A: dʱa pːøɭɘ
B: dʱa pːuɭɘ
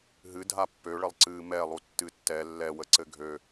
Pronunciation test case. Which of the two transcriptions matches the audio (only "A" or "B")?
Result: A